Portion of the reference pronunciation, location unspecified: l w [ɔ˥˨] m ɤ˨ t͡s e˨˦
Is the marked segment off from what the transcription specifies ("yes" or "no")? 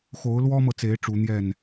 yes